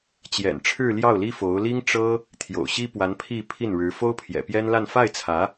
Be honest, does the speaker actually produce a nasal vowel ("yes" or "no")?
no